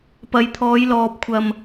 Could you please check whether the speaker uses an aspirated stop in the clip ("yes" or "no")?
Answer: yes